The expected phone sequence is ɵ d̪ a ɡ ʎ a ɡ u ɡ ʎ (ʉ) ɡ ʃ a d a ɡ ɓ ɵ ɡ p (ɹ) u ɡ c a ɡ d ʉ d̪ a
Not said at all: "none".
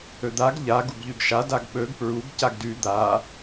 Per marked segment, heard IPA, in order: ʉ, ɹ

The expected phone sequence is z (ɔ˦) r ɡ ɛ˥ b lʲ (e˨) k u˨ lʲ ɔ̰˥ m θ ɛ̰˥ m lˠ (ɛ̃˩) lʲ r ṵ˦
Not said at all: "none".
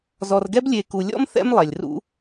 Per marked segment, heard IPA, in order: ɔ˨, e˨, ɛ˩

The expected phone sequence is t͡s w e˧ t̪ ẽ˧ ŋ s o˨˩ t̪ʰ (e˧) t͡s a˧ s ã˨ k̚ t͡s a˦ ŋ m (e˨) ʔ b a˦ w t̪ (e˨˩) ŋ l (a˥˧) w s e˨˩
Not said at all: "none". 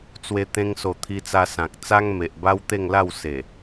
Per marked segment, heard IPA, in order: i˧, e˨, e˥˧, a˥˧

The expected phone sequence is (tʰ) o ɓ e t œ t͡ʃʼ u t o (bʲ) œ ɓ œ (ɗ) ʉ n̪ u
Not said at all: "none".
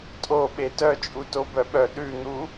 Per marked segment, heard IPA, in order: tʼ, b, ɗ

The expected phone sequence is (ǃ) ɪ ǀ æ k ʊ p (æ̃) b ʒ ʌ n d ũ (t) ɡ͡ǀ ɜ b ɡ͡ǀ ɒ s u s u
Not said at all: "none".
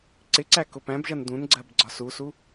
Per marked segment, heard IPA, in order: ǀ, æ̃, n

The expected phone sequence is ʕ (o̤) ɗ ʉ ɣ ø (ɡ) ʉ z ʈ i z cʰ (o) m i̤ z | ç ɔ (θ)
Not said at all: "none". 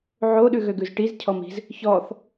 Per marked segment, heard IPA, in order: o, ɡ, ɔ, θ

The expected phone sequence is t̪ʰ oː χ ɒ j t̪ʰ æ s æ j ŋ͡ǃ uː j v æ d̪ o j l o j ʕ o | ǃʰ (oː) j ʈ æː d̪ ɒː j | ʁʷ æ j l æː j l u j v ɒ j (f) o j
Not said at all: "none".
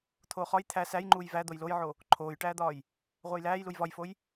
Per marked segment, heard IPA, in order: oː, f

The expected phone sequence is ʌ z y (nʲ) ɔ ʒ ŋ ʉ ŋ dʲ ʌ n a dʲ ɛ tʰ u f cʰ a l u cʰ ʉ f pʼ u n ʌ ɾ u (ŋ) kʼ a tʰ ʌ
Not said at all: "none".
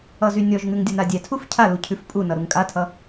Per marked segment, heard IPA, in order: nʲ, ŋ

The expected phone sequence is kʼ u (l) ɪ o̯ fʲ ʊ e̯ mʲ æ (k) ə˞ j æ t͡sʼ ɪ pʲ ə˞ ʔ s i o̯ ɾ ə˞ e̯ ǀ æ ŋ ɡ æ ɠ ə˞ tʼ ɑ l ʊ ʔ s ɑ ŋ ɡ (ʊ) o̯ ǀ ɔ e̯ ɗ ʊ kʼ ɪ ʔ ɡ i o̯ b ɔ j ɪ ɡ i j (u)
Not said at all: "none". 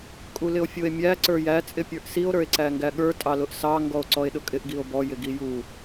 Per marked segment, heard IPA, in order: l, ǀ, ɔ, u

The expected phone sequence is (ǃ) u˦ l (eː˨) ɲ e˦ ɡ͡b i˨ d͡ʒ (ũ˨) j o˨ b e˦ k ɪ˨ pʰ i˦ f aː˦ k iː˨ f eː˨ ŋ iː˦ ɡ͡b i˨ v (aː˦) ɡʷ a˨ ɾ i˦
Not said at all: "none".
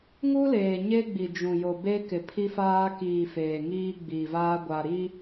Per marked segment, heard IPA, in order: ŋ, eː˨, ũ˨, aː˦

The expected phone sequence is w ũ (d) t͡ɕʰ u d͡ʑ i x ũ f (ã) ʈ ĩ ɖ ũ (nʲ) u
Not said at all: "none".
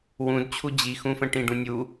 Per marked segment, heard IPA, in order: d, ə̃, nʲ

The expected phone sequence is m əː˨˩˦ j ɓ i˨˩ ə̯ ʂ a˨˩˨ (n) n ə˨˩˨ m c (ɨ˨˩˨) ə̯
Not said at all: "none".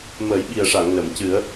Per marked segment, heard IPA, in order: ŋ, ɨ˨˩˦

